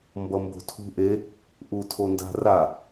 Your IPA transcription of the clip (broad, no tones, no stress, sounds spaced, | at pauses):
m b ʌ m b o̤ tʰ ṳ ʔ e | ʔ u tʰ o n d a̤ r a